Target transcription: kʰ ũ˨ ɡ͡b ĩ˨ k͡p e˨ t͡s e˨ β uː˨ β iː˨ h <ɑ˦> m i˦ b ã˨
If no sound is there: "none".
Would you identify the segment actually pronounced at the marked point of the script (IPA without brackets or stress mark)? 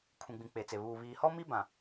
ɔ˦